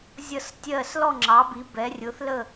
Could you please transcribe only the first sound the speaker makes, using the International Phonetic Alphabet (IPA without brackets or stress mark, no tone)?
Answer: zʲ